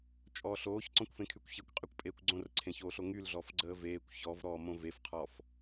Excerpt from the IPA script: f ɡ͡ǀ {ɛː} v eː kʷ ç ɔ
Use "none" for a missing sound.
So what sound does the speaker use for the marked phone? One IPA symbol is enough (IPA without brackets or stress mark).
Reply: əː